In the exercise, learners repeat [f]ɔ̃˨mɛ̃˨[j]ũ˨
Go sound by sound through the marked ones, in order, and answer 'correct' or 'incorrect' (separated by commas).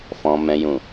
correct, correct